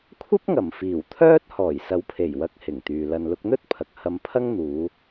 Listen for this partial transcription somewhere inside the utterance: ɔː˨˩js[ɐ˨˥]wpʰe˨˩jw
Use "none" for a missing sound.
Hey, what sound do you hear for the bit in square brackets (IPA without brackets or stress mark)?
ɐ˨˥